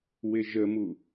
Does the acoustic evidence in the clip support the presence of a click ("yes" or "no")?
no